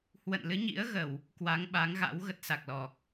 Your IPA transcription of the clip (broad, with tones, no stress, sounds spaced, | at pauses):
h w ə̰˧˨ n l ɨ˨˦ ɲ ḭ˧˥ ə̯ ɣ ə˧˩˨ w | k w a˨˦ ŋ ɓ a˨˦ ŋ ɣ a̰˧˥ w ɣ ə˦˥ t̚ s a˨˩ k̚ l ɔ˨˩ k̚